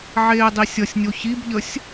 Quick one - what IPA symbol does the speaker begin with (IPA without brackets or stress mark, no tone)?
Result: ʕ